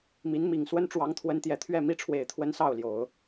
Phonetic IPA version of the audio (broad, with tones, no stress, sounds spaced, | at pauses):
m i˧˥ n m i˨˩ ŋ s w ə˥ n ʈ͡ʂ w ɑ˧˥ ŋ t̪ʰ w ə˧˥ n t̪ j ɛ˨˩ t̪ʰ ɥ ɛ˥˩ m i˥ ʈ͡ʂʰ w e˨˩ ɪ̯ t̪ʰ w ə˧˥ n s ɑ˥˩ ʊ̯ l j o˨˩˦ ʊ̯